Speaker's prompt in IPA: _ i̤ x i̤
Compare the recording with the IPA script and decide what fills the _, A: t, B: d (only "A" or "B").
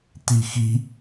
A